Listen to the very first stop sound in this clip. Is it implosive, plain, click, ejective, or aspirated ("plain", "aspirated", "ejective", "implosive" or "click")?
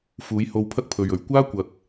aspirated